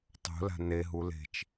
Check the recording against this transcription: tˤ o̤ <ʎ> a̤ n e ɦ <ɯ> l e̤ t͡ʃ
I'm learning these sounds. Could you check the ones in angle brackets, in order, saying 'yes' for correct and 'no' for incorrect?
no, no

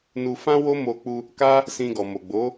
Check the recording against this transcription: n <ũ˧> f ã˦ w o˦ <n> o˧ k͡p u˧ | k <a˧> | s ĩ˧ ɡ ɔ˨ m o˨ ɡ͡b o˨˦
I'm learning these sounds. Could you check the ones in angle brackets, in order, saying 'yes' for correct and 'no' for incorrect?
no, no, no

